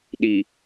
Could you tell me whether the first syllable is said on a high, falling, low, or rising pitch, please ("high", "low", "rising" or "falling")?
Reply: low